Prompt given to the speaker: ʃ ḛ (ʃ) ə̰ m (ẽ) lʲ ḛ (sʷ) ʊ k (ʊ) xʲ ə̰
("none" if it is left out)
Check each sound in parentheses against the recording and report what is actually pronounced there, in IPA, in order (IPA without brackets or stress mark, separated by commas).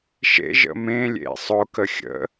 ʒ, ẽ, sˤ, ə